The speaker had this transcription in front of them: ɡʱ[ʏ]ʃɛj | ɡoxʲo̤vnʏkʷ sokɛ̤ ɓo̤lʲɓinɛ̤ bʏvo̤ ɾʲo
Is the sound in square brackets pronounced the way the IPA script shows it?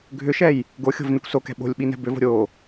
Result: yes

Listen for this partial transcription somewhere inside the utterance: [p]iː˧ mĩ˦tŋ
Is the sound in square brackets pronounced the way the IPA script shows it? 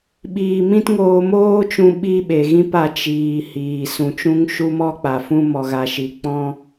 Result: no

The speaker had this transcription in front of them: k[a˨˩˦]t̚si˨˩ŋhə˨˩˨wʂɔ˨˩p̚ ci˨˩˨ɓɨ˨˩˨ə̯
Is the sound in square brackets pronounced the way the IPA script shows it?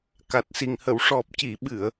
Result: no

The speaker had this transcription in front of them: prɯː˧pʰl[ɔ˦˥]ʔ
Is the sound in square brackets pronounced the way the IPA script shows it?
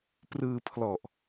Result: no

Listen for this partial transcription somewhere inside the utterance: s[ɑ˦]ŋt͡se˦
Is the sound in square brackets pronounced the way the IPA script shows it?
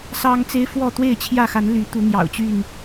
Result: yes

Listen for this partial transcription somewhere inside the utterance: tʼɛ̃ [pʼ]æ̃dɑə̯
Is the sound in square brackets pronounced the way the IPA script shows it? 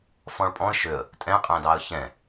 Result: no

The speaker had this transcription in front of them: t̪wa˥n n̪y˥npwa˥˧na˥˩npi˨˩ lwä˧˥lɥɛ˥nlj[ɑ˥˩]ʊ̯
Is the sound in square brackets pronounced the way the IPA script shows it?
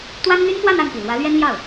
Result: yes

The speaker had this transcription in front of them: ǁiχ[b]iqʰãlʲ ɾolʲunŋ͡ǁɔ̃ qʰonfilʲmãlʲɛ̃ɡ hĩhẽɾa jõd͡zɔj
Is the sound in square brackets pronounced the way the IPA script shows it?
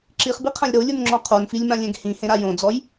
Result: yes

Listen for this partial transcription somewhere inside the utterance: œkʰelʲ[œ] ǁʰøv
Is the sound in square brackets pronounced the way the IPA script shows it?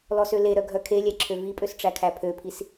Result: no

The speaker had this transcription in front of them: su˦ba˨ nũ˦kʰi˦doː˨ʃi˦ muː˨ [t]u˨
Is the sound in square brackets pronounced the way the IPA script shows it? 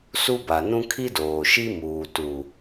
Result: yes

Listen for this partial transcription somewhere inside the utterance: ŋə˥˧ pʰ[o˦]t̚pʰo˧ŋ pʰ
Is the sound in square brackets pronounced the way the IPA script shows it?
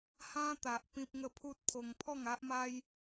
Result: no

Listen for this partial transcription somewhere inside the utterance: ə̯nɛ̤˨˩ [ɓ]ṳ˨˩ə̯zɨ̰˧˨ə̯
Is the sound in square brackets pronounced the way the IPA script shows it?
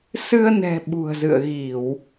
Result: yes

